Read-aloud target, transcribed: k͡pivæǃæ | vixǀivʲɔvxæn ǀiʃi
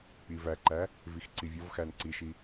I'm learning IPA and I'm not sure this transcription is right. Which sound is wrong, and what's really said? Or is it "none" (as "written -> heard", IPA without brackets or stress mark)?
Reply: none